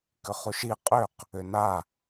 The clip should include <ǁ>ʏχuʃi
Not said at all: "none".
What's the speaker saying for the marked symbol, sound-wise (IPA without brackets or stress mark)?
k